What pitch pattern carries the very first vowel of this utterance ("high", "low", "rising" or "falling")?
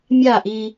falling